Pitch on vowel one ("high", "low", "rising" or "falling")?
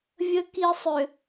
low